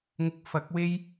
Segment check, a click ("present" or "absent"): absent